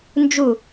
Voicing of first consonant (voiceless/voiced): voiced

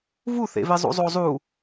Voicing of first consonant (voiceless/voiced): voiced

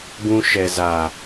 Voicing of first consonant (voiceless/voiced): voiced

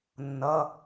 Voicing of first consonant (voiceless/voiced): voiced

